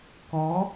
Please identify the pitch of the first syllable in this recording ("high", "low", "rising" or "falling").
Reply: rising